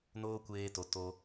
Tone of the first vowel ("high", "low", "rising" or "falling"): high